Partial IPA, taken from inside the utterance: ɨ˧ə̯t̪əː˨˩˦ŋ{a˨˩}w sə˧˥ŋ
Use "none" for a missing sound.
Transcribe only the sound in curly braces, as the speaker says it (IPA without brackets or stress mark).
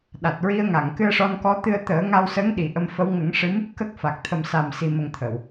a˧